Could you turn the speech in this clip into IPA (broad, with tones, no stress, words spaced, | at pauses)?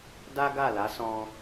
da˦ɡa˦˨la˨˦sɔ̃˧